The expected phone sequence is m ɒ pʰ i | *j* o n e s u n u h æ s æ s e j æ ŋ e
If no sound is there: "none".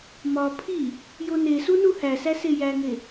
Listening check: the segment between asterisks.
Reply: j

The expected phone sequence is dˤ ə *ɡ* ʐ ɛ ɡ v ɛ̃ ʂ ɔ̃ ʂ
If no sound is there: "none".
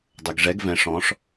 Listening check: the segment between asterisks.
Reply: ɡ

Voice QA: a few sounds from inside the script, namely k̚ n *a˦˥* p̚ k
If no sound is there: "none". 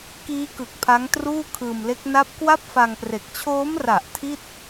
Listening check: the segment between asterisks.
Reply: a˦˥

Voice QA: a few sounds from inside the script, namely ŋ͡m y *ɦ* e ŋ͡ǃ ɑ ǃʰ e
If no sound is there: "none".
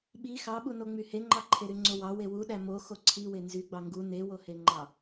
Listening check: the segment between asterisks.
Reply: h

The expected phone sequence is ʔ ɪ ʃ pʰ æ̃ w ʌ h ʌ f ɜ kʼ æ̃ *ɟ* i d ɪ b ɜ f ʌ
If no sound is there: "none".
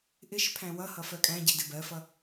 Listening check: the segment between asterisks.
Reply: ɟ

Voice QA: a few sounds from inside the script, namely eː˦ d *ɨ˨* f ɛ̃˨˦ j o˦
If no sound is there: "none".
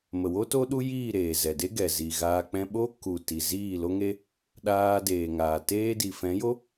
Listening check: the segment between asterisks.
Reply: i˨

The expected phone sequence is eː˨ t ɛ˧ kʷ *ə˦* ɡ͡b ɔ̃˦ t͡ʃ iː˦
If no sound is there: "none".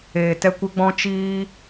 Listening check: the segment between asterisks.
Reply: ə˦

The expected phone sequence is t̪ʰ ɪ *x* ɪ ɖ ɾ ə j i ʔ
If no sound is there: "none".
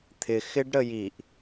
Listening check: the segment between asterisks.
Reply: x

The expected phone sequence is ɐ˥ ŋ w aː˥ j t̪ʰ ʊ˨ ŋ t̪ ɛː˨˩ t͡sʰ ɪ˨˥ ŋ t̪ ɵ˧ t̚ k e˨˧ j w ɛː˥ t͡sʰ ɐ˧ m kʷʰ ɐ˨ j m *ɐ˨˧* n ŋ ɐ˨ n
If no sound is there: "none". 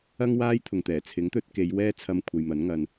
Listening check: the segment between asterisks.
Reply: ɐ˨˥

